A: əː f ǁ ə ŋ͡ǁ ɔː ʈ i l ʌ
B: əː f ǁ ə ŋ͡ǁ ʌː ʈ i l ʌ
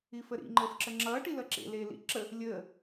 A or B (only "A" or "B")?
B